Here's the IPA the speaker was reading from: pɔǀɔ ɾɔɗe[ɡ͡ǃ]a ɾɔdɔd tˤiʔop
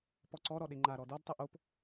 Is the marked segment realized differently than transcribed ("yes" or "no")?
yes